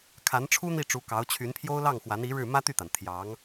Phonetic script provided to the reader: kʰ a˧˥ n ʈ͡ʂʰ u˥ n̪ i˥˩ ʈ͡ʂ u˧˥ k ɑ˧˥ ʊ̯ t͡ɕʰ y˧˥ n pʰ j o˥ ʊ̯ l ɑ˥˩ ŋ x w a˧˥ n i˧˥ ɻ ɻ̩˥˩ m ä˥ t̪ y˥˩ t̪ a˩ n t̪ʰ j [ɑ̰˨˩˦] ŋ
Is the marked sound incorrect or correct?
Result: incorrect